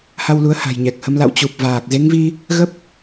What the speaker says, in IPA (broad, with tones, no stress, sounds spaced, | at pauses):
h a˧ w l u˨˦ ə̯ h a̤˨˩ j ɲ ɛ˨˩ k̚ h ə˨˦ m l a̰˧˨ w t͡ɕ u˨˩ p̚ v aː˨˩ k̚ z e˨˦ ŋ v i˧ | ɣ ə˦˥ p̚